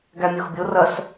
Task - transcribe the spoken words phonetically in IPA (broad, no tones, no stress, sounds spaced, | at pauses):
ɡ æ mʲ o x bʲ o r ɐ s